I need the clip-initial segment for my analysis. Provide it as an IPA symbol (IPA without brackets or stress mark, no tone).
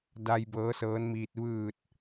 d